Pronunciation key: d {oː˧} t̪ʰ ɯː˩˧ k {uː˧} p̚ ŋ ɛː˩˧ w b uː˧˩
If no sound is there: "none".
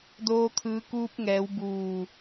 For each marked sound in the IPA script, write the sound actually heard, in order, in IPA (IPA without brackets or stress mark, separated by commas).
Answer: oː˧, uː˧